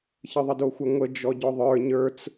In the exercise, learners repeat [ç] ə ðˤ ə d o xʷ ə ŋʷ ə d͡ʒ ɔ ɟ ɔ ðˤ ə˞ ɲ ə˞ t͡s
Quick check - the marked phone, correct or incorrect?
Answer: correct